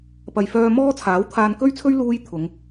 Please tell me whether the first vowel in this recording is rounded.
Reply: no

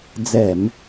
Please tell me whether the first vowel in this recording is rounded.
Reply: no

